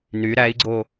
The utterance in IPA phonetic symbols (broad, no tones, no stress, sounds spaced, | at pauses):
n y ɾ æ i̯ ɡ͡ǀ o